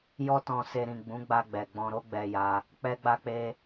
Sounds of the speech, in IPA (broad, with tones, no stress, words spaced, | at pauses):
jɔ˦tɔ̃˧se˧ ɾĩ˨ ɡ͡bũ˨˦ɡ͡ba˧ɡ͡bɛ˨ ɡ͡bɔ̃˧ɾo˦ɡ͡bɛ˧ja˧ | k͡pɛ˧ɡ͡ba˧k͡pe˧